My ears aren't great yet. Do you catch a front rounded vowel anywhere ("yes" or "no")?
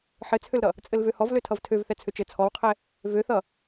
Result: yes